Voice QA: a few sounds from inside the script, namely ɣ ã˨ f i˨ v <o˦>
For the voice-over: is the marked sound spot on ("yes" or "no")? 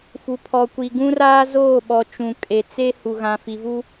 no